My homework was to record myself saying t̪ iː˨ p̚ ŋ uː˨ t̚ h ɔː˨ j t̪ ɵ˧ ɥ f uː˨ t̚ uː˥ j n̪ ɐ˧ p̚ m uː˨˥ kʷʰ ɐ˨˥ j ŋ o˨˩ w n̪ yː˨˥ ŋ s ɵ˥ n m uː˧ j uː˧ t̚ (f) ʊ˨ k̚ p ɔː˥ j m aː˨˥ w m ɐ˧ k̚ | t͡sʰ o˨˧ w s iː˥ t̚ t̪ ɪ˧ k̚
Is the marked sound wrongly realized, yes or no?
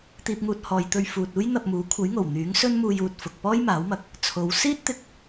no